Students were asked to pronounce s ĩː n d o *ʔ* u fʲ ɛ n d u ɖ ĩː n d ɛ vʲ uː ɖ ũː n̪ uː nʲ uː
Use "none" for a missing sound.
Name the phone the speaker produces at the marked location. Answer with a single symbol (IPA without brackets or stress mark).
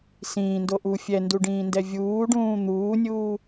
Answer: ʔ